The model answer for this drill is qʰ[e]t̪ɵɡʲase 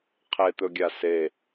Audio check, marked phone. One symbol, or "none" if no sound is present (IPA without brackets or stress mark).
e